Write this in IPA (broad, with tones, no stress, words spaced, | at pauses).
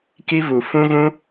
ki˧vu˨ fũ˧ɣũ˧